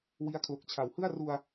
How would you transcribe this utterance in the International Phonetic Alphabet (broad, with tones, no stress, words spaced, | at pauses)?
wi˦˥a̯kʰlo˨˩k̚t͡ɕʰa˨˩w hɯ˥˩a̯ ru˧a̯